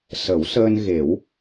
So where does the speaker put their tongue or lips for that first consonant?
tongue tip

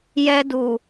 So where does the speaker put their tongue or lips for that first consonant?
palate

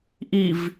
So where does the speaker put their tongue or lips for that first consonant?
throat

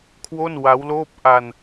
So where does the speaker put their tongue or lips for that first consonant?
velum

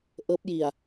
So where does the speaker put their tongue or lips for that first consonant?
throat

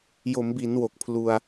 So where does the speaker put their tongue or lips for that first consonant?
palate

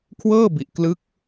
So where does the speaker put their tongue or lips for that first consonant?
velum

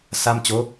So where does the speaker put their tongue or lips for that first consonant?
tongue tip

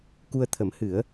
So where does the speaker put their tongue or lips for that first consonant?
velum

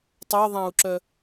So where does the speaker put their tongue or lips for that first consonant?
tongue tip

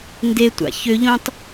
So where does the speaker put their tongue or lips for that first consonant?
tongue tip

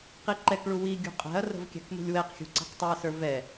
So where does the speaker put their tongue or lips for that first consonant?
uvula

